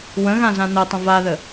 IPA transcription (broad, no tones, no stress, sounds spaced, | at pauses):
w ə̃ ɣ ã z ã n ə tˤ ə̃ v a ð ə